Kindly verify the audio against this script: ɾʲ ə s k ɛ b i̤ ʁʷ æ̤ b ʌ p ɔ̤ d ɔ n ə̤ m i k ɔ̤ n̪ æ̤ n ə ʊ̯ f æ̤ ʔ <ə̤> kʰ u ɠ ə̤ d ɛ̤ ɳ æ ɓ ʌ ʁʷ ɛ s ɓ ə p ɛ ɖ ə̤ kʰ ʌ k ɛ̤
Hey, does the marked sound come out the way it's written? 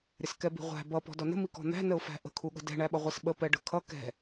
yes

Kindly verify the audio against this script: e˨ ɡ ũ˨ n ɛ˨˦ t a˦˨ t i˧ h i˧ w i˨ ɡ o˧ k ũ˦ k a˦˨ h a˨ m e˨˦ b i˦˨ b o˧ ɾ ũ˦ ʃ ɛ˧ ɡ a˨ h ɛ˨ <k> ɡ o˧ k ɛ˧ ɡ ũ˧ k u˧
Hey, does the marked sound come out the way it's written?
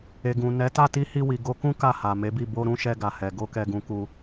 no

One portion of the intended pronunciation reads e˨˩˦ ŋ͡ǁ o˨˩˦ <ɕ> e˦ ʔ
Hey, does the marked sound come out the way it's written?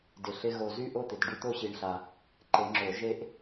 no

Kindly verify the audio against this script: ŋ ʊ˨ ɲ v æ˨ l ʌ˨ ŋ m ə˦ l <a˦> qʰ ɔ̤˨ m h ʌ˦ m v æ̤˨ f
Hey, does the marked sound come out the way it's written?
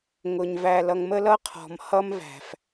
no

